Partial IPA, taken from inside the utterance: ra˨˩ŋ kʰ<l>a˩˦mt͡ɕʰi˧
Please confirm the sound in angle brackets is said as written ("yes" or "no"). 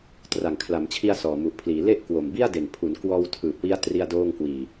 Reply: yes